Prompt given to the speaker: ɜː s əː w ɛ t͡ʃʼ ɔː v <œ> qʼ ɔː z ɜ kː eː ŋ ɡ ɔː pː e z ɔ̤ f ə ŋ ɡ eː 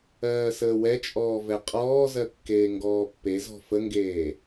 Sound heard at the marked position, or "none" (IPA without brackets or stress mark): ɛ